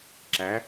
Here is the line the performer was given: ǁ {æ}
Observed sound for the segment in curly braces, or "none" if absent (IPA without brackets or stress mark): æ